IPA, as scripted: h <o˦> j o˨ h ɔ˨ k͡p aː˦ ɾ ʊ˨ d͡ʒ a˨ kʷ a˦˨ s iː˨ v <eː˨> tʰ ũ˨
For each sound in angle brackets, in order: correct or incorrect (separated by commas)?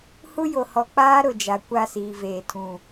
incorrect, correct